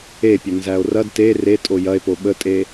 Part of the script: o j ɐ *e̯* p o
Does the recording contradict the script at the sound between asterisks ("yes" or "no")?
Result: no